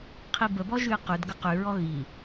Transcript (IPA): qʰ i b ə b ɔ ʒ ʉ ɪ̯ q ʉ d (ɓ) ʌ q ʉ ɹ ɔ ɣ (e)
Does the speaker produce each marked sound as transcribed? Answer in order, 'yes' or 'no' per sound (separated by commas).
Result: no, no